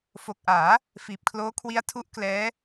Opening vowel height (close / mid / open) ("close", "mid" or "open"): mid